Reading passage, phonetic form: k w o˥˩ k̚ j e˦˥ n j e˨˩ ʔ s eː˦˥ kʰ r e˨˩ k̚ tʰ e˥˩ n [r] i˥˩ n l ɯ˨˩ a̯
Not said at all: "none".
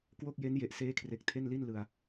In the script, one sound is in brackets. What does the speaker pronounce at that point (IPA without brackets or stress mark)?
l